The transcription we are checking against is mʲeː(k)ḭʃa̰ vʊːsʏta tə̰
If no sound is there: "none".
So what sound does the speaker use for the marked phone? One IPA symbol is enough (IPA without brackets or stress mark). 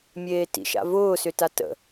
t